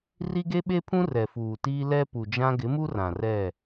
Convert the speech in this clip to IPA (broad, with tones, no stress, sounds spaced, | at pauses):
r i˦ ɡ e˦ ɓ e˦ pʰ ũ˦ r ɛ˨ f uː˨ t iː˦ l ɛ˦ p u˨ d͡ʒ ã˦ ɡ ɪ˨˦ m u˦ r ã˨ r ɛ˦˨